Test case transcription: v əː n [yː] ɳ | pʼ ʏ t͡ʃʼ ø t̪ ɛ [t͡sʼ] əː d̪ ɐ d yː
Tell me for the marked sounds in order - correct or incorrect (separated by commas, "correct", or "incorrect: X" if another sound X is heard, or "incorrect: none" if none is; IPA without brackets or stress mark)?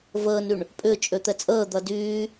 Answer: incorrect: y, correct